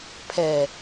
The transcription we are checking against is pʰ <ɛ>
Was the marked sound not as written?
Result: no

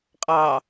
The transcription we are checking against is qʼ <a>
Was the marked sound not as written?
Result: yes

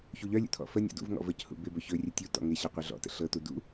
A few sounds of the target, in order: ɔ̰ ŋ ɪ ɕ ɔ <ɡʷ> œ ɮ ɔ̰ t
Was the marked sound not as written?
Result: yes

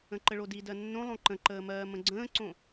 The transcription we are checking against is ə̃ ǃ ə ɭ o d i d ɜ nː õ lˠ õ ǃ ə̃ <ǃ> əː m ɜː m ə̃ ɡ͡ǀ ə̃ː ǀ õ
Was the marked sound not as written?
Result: no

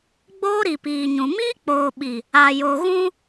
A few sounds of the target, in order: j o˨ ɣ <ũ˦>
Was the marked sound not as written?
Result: no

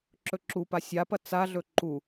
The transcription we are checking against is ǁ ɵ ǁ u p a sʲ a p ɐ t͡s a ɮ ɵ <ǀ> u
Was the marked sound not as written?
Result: yes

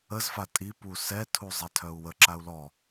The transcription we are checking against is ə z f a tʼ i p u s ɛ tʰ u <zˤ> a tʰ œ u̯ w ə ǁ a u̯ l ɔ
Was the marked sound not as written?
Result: no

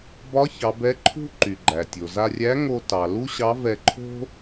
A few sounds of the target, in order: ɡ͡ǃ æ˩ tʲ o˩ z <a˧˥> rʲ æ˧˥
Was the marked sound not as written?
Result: yes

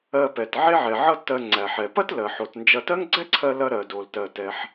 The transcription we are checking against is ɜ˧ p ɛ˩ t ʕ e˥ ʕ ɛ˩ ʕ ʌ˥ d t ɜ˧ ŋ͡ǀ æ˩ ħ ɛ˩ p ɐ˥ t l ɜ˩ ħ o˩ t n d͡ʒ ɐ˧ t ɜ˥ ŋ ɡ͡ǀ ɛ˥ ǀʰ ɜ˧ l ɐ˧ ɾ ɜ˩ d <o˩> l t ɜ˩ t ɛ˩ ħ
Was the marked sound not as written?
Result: no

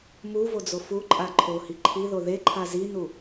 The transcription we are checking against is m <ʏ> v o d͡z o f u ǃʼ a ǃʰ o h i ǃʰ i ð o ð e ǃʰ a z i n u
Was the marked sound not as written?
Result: yes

